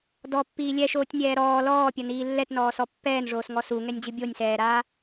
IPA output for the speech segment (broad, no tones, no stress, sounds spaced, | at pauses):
d ɔ pː iː lʲ ɛ ʃ oː tʲ nʲ ɛː ɾ ɔː l ɔː pʲ ɐ n iː lː ɛ t n ɔː s ɔ pː ɛː n ʐ oː s ŋ ɔ s u ŋ ɛ nʲ d͡ʑ ɨ bʲ o nʲ s ɛː ɾ aː